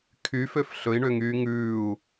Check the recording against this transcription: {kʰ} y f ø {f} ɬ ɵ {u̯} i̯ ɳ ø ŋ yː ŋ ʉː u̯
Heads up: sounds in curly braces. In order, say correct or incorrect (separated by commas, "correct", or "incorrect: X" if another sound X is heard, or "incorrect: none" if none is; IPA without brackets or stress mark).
correct, correct, incorrect: none